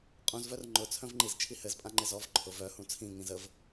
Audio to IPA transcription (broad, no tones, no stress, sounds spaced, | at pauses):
qʼ ũ z v œ r ŋ͡ǃ ʊ t͡sʰ œ̃ v ŋ͡ǃ i z t͡ʃʰ i h ɘ z pʼ ã ŋ͡ǃ ɪ z ɔ v ǃʰ ʊ v œ h ũ t͡sʰ ĩ ŋ ĩ z ə v